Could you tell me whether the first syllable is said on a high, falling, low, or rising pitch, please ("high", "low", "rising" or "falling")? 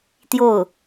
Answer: falling